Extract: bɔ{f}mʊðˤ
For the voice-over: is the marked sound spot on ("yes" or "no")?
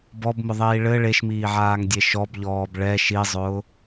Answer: no